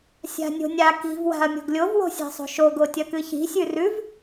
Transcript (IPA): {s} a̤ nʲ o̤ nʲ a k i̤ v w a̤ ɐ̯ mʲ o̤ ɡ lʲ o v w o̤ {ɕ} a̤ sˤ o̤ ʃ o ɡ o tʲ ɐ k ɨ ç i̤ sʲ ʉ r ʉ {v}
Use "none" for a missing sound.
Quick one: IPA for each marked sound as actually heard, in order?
sʲ, sʲ, v

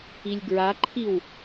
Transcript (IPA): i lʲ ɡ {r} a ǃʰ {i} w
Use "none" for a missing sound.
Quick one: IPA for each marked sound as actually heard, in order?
ɹ, i

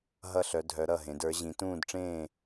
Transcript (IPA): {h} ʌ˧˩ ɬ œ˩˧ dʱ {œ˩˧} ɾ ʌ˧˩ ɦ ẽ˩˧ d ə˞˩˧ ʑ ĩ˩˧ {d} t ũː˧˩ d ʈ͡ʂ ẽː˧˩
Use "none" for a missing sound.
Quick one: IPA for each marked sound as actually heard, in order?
ɦ, œ˩˧, none

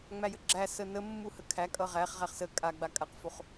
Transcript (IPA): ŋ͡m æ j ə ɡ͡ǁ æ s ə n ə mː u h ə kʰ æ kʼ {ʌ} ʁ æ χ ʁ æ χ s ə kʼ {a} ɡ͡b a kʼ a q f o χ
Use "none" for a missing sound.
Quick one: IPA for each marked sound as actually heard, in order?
ʌ, a

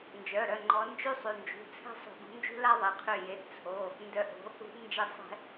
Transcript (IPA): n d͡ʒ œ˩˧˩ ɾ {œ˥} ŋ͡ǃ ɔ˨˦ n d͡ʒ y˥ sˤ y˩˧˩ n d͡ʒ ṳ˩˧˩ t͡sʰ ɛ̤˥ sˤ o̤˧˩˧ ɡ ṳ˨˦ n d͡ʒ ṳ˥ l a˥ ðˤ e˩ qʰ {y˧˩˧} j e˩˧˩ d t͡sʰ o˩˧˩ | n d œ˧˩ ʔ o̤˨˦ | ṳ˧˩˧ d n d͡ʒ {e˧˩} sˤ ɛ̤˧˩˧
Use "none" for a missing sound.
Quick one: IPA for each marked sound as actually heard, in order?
œ˩˧˩, y˧˩, e˧˩

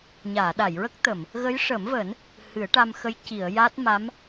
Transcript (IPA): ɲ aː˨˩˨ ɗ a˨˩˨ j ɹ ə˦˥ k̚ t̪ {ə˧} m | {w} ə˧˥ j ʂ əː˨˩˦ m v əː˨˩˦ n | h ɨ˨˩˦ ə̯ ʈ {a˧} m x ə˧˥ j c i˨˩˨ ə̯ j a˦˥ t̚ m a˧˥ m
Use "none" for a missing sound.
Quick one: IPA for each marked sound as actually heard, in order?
ə˨˩˨, ɣ, a˧

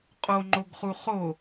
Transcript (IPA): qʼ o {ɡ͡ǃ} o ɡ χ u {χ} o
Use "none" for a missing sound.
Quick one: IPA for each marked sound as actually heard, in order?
ŋ͡ǃ, χ

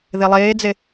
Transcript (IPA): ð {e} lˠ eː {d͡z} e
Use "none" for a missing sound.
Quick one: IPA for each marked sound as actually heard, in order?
e, d͡z

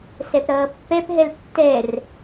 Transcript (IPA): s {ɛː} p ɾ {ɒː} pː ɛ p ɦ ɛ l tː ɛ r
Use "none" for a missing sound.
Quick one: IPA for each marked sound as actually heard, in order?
ɛ, ʌː

